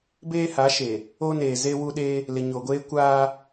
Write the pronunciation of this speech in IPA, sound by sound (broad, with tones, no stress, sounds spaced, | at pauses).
b eː˦ h a˨˦ ʃ e˨ | o˦ n eː˨ z e˦ w u˦ ɗ e˦ | l ɪ˨ ɲ o˨ ɡʷ eː˦ kʷ aː˦